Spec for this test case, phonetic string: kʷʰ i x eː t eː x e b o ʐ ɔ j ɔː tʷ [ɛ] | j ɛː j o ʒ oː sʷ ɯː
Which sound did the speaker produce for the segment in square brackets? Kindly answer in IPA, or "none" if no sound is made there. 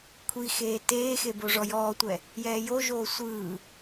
ɛ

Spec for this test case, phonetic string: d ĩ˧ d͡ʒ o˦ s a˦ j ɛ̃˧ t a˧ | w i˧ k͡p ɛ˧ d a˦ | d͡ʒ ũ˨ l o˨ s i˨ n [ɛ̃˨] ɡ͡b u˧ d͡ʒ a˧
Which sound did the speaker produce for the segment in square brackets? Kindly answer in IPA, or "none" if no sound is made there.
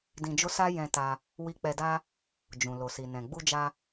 ɛ̃˨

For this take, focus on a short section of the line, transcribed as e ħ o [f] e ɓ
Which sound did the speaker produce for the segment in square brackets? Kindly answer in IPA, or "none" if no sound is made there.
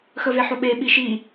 ɓ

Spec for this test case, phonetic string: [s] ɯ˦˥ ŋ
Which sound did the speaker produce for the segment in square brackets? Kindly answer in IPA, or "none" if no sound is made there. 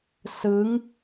s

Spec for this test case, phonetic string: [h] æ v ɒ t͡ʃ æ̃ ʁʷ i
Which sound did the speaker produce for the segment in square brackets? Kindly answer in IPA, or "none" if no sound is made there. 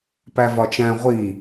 p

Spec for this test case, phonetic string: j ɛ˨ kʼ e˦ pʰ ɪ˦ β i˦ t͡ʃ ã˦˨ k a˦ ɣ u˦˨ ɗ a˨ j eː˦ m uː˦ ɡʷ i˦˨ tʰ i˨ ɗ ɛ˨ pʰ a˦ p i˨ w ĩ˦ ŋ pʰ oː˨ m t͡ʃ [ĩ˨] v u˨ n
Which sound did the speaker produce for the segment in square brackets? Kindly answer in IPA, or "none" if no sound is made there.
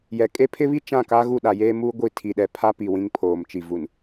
i˨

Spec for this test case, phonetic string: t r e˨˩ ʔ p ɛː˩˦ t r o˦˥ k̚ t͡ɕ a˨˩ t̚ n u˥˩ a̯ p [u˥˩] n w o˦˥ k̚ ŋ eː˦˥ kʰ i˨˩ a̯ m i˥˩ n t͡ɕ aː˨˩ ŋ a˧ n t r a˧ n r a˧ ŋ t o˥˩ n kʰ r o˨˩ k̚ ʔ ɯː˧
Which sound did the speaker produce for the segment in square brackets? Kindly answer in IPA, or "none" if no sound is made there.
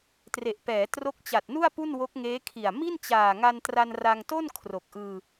u˥˩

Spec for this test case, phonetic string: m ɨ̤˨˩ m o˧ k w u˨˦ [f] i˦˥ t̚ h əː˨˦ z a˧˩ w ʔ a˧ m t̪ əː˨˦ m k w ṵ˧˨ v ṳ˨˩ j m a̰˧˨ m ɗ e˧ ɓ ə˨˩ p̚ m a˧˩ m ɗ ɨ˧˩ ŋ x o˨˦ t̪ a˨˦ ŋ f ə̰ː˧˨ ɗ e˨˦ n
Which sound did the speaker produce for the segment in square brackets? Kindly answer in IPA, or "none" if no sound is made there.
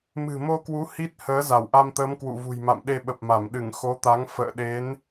h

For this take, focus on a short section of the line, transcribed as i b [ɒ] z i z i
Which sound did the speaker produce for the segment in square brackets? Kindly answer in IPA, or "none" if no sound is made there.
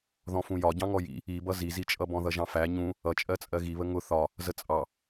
ʌ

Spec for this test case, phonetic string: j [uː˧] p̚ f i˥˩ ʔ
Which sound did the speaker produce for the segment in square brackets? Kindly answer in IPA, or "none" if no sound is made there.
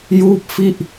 uː˥˩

